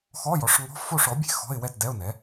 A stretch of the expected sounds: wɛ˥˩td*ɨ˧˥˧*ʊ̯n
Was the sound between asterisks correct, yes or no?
no